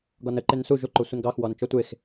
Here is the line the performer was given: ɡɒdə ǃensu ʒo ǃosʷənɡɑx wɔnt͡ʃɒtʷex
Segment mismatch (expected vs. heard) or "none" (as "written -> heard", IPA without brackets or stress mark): d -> n